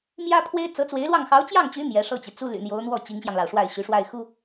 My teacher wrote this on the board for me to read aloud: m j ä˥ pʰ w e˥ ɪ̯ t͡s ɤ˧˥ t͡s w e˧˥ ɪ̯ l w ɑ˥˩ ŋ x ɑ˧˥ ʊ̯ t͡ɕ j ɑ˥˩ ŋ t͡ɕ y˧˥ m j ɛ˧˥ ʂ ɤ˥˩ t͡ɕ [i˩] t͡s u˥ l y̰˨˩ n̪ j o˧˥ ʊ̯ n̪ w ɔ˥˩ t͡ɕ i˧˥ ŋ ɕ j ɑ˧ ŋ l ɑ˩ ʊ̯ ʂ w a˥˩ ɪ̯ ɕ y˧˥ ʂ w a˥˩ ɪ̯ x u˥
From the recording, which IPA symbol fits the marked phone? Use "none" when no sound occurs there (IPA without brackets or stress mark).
i˩